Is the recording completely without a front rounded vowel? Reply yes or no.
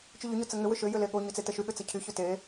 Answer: no